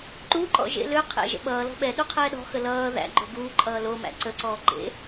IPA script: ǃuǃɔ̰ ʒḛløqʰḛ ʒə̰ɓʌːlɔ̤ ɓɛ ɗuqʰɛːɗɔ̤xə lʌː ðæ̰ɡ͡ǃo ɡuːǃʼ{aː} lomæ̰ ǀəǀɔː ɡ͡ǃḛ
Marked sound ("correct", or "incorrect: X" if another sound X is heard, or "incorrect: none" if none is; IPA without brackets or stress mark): incorrect: ʌː